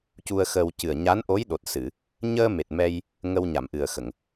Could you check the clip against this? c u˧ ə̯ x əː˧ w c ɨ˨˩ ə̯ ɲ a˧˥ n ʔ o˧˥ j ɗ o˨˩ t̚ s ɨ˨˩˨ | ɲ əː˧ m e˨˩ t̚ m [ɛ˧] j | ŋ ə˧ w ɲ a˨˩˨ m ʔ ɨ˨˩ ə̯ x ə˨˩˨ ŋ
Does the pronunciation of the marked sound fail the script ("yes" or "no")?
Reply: no